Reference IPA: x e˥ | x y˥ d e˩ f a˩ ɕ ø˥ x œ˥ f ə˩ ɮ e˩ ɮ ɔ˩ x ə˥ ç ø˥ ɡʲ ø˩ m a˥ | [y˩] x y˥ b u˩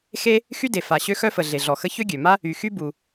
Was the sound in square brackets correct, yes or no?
yes